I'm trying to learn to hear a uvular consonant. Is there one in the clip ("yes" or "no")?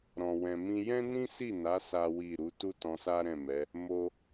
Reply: no